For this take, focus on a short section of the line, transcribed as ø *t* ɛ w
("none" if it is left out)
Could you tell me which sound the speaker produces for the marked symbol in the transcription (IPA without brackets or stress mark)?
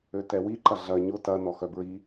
t